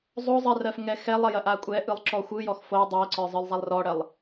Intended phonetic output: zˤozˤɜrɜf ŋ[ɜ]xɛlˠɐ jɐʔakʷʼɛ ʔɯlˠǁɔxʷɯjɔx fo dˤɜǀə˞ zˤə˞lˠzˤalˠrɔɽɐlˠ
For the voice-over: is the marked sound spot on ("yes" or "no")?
no